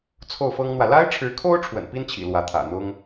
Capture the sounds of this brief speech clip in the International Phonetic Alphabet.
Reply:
t͡sʰ o˥˩ ʊ̯ f ɤ˥ ŋ n̪ w ä˨ l a˥ ɪ̯ ʈ͡ʂʰ ɻ̩˧˥ kʰ o˥ ʊ̯ ʈ͡ʂʰ w ə̰˨˩ n p i˥ n t͡ɕʰ ḭ˨˩ l w ä˧˥ t̪ʰ ä̰˨˩ n̪ ʊ˥ ŋ

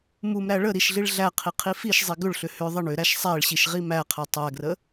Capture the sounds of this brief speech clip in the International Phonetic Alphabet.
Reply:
m u m ɾ æ ɭ ə ɾ i ʃ ɮ i ɭ ɮ æ qʰ i qʰ i f i ʃ zˤ i ɡ ʏ ɭ ɬ ʏ h ʏ ðˤ ə ɳ ʏ ɾ æ ʃ sˤ æ ɭ ɕ i ʃ ʁ i m æ qʰ æ tˤ æ ɡ r ə

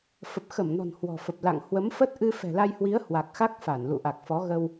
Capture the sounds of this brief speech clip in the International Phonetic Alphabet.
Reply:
f ə˨˩ p̚ x ə˧˩ m n ɔ̤˨˩ n h w ɔ̤˨˩ f ə˨˩ p̚ l a̰˧˨ ŋ h w ə˨˦ m f ə˦˥ t̚ ʔ ɨ˧ f ɛ̤˨˩ l a˧ j h w i˨˦ ə̯ h w a˨˩ k̚ x a˦˥ k̚ f a˧˩ n l ṵ˧˨ ʔ a˨˩ k̚ f ɔ˨˦ ɣ ə˧ w

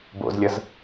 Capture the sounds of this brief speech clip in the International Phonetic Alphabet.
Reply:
b o̰ z lʲ ʌ z

